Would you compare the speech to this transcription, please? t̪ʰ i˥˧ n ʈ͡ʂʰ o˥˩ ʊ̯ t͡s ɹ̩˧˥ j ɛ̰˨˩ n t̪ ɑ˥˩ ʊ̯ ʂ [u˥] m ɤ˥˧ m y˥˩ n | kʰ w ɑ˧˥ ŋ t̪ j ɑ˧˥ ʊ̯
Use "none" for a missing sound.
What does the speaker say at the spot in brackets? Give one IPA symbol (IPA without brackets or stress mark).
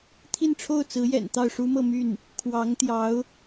u˥